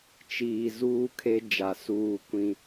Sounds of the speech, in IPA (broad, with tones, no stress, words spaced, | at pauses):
t͡ʃiː˨ zuː˦ kʰe˦ d͡ʒa˨suː˦˨ kʷĩ˦